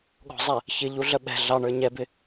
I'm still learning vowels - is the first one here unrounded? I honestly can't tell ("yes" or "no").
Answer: no